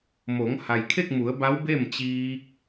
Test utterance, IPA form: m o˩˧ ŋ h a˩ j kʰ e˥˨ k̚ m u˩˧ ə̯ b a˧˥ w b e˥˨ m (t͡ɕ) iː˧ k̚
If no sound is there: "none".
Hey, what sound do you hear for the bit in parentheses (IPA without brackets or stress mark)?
t͡ɕ